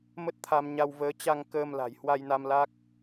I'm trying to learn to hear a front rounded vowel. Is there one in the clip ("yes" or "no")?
no